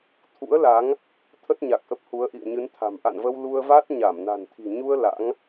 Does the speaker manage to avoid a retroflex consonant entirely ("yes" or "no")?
yes